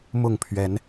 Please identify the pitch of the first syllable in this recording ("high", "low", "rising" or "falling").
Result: falling